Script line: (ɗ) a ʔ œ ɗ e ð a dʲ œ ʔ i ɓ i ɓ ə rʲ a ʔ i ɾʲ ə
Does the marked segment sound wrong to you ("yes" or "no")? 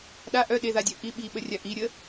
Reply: no